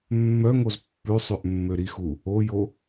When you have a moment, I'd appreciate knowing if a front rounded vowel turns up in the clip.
yes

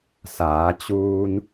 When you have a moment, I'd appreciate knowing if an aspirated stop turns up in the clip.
no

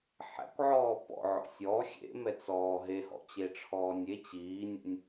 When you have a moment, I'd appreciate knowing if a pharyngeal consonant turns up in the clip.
yes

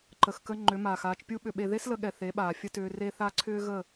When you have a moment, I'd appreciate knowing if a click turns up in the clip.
yes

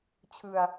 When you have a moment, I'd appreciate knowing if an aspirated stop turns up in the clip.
yes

